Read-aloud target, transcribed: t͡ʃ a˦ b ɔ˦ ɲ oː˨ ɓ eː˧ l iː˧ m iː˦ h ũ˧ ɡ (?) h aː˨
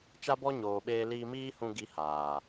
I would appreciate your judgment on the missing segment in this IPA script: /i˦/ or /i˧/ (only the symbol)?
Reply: i˧